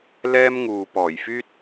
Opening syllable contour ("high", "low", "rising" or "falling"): high